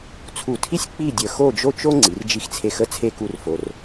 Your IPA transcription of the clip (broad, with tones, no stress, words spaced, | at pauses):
t͡sʰu˧˩tʰi˥sʲ k͡pi˥˧dʲə˧˩ xo˥˧d͡ʒo˥t͡ʃo˥ ŋ͡ǀi˩˧rd͡ʒi˧xt͡sʰe˧xə˥ t͡sʰe˥˧ku˥˧rfo˧r